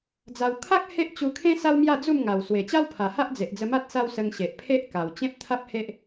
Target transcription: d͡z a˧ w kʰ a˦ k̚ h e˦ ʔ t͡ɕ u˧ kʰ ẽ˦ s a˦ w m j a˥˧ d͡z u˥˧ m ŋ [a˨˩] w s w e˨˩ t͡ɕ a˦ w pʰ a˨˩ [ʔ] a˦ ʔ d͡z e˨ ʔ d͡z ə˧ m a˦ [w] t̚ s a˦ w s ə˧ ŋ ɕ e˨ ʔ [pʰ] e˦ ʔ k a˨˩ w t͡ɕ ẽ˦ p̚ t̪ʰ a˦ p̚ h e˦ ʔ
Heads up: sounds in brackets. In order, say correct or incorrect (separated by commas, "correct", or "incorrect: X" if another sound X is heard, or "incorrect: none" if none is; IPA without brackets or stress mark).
correct, incorrect: h, incorrect: none, correct